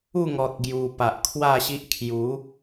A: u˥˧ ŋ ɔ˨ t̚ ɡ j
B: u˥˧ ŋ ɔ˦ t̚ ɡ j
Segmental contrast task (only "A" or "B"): A